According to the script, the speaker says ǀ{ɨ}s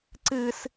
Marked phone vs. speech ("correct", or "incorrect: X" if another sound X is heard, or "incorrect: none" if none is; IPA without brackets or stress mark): correct